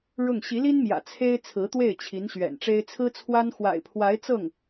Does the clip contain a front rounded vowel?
no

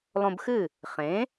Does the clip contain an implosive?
no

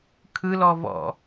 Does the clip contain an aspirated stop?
yes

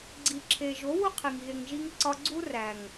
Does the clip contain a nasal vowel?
no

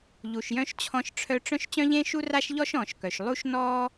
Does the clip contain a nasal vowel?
yes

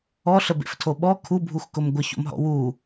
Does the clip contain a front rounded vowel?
no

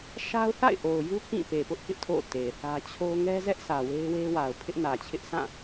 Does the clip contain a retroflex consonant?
no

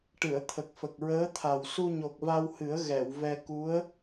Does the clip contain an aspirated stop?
yes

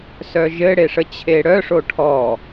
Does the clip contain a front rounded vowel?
yes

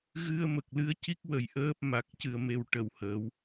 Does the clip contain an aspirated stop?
no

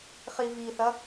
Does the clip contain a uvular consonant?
yes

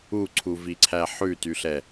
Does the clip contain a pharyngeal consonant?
yes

